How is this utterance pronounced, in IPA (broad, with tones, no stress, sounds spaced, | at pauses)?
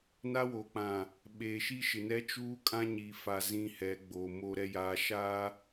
n a˦ w o˨ k͡p ã˨ | ɓ eː˨ ʃ i˦ ʃ ɪ˨ n ɛ˦ t͡ʃ uː˦ kʼ ã˦ ɲ i˨ f a˨ z ĩ˦ h ɛ˨˦ ɡ͡b oː˨ m o˨ ɾ ɛ˨ j aː˨ ʃ aː˦